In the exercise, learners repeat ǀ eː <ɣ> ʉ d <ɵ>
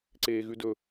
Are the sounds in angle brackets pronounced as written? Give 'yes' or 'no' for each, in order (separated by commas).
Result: yes, yes